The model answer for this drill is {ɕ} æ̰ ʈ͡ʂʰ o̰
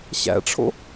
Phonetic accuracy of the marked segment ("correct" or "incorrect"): correct